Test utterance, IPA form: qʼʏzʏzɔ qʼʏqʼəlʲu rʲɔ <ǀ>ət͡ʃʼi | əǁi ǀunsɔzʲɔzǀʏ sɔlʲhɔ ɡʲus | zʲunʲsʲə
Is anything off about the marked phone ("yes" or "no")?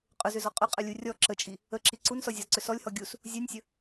yes